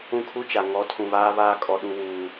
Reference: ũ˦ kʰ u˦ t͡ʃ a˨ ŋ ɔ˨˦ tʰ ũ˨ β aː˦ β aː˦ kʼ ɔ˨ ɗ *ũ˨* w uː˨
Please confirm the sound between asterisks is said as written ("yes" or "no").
no